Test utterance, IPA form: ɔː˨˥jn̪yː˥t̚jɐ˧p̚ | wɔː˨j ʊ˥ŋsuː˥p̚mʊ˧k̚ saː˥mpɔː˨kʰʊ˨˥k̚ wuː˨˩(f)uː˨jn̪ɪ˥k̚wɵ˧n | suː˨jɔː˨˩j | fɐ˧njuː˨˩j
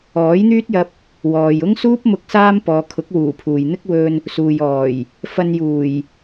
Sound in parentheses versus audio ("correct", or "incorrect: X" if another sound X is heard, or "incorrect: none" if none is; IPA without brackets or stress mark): incorrect: pʰ